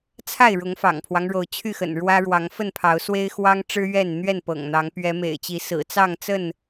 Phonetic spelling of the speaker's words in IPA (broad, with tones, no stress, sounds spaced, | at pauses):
t͡sʰ a˥˨ ɪ̯ ɻ ʊ˨˦ ŋ f ɑ̰˨˩ ŋ pʰ w ɑ˦ ŋ ɻ o˨˦ ʊ̯ t͡ɕʰ y˥˨ x ə̰˨˩ n ɻ w ä˦ ɻ w ɑ˨˦ ŋ f ə˥˨ n pʰ ɑ˨˦ ʊ̯ s w e˦ ɪ̯ x w ɑ˦ ŋ ʈ͡ʂ ɻ̩˦ ɥ ɛ˥˨ n n̪ ɥ ɛ˥˨ n p ɤ̰˨˩ ŋ n̪ ɑ˨˦ ŋ p ɥ ɛ˨˦ m ḛ˨˩ ɪ̯ t͡ɕ i˨˦ s ɹ̩˨˩ t͡s ɑ˥˨ ŋ t͡s ə˥˨ n